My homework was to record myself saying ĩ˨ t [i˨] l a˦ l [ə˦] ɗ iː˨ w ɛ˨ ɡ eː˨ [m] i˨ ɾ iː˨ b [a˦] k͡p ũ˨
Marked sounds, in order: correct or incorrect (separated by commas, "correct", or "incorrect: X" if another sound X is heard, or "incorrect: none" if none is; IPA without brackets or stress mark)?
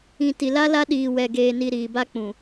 correct, incorrect: a˦, incorrect: n, correct